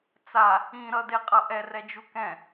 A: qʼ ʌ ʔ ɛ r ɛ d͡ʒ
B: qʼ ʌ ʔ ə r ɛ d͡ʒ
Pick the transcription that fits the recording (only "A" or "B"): A